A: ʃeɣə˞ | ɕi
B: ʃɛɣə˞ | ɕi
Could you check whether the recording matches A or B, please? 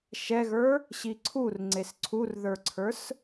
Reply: B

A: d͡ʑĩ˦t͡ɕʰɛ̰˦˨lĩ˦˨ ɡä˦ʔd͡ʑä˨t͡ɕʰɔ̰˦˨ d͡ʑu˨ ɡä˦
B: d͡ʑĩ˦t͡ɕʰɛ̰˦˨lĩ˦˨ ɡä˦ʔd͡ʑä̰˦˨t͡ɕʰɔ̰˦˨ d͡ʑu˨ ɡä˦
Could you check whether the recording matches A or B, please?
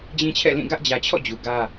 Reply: A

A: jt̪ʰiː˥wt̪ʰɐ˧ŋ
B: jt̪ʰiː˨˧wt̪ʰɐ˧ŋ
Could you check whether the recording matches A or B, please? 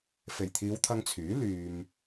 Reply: B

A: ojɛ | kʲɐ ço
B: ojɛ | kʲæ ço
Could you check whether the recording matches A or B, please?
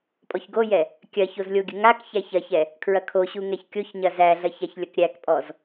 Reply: A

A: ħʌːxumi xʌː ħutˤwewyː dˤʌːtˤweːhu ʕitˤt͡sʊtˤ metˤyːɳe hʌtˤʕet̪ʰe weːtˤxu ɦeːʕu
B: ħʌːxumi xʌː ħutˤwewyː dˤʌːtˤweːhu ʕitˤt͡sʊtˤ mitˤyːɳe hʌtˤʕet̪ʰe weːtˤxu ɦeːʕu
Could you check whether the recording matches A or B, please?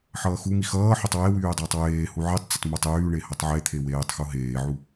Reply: A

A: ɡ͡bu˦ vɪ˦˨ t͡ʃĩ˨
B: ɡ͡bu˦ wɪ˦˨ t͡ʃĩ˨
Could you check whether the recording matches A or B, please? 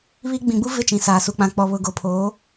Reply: A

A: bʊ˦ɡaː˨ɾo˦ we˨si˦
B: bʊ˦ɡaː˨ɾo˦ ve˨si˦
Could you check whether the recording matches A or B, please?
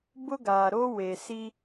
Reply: A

